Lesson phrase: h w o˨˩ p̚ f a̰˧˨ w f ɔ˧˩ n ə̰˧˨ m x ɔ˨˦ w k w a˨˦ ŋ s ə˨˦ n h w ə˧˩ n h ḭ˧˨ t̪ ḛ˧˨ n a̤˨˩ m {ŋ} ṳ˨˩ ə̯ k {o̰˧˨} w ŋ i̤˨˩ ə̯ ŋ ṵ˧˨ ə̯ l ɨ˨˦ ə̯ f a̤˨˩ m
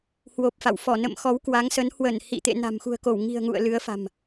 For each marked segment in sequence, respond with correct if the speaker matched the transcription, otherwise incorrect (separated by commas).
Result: incorrect, incorrect